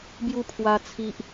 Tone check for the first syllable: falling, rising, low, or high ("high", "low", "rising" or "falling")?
falling